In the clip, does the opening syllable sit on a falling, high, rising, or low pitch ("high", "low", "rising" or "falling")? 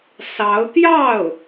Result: rising